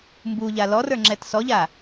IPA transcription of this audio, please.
m b u ʎ a l ɔ r ə˞ ŋ͡ǁ ɛ t s ɔ ʎ a

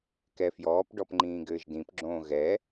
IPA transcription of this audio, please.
k ɛ f j ɔː p ɖ ɔ p ŋ͡ǃ ĩː ɡ ɘː ʒ d ĩ p ɡ͡ǁ õː ɣ ɛ

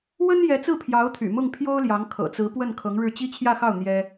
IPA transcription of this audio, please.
w ə˥ n j ɛ˧˥ t͡s ɹ̩˥˩ pʰ j ɑ˧˥ ʊ̯ t̪ʰ y̰˨˩ m ʊ˥˩ ŋ pʰ j o˥ ʊ̯ l j ɑ˧˥ ŋ kʰ ɤ̰˨˩ t͡s ɹ̩˧˥ p w ə˥˩ n kʰ ɤ˧˥ ŋ ɻ ɻ̩˥˩ t͡ɕ i˥ t͡ɕʰ j ä˥˧ x ɑ˥˩ ʊ̯ n̪ j ɛ˥

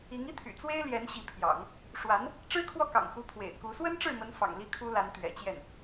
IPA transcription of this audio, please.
i˧˥ ŋ i˥ t̪ʰ y̰˨˩ t͡s w e˥ ɪ̯ l j ɛ˧˥ n ɕ i˧˥ pʰ j ɑ̰˨˩˦ ŋ | ʂ w a˧˥ n | ʈ͡ʂ ɻ̩˥ kʰ w ɔ˥˩ k ɑ̰˨˩ ŋ x u˧˥ pʰ w ḛ˨˩ ɪ̯ k u˧˥ s w ə˥ n ʈ͡ʂ ɻ̩˥˩ m ə˧˥ n f ɑ̰˨˩ ŋ l i˥˩ kʰ u˥ l a˧˥ n t̪ ɥ ɛ̰˨˩ t͡ɕ j ɛ˥˩ n

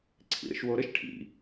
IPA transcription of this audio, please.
ǀʰ ḭ ɾ ə̰ ʃ w o ɾ ə ʃ ʈʰ ḭ

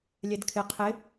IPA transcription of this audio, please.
lʲ ɛ d kʰ ɪ qʰ ɪ

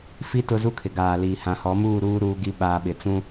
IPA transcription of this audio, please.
f i˦ t ʊ˦ z u˦ kʰ ɪ˨ ɡ aː˨ l iː˨ h ã˨ h ɔ˨˦ m uː˦˨ ɾ uː˦ ɾ uː˦ ɡ i˦ ɓ aː˨ ɓ ɪ˨ t͡s ũ˦

